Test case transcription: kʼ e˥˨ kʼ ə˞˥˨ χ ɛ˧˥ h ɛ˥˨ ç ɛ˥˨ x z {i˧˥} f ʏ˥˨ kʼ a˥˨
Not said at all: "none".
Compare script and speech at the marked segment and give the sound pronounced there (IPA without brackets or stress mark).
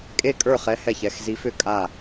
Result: i˧˥